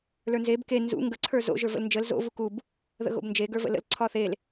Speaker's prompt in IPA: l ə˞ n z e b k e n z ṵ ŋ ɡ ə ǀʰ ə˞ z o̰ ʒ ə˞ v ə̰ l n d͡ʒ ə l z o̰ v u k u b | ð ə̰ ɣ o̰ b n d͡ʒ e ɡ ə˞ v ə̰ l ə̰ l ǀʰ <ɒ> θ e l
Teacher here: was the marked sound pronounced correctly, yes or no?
yes